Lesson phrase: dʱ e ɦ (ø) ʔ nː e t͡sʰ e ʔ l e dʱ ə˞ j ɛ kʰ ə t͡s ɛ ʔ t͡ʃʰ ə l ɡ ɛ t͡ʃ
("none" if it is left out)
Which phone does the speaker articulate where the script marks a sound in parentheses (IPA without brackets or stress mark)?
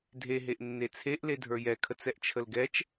e